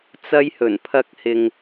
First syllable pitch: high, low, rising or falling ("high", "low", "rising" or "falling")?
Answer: high